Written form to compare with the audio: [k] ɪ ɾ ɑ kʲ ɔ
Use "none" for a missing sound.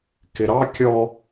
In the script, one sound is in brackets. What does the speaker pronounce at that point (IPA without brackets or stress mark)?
k